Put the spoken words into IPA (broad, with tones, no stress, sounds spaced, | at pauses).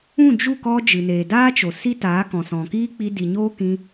ũ˦˨ d͡ʒ u˦˨ k ɔ˧ d͡ʒ ɨ˨ n eː˨ d aː˦ t͡ʃ o˨ s i˧ t aː˨˦ k ɔ̃˨ s ɔ̃˨ k iː˦ k͡p i˧ d i˨ ɲ oː˦ k ĩ˧